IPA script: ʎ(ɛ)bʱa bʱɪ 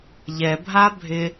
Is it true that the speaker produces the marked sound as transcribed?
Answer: yes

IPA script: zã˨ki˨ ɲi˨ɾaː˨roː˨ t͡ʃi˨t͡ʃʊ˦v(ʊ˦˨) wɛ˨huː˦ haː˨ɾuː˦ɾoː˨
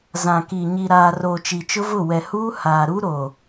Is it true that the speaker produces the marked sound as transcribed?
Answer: yes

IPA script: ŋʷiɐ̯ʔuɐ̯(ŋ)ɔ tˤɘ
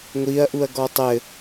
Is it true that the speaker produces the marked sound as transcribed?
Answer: no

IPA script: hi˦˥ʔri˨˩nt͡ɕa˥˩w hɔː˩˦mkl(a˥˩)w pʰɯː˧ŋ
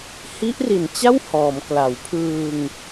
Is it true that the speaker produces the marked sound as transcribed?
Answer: no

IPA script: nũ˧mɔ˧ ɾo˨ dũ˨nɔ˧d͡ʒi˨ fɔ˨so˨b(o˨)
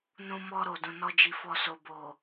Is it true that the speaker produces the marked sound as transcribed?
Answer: yes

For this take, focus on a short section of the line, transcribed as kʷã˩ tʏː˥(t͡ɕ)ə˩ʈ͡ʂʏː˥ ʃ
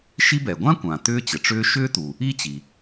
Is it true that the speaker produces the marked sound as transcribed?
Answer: yes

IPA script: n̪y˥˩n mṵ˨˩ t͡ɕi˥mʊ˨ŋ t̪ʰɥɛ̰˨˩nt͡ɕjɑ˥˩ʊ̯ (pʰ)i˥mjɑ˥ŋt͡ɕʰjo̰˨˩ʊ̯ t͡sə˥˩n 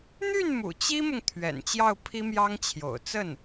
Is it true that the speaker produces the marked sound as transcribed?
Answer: yes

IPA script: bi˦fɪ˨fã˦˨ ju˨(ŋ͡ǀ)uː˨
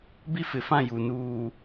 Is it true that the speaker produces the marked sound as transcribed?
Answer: no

